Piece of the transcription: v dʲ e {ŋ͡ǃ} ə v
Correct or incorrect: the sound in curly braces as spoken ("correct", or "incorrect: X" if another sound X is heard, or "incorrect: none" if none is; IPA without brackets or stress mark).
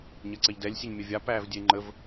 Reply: correct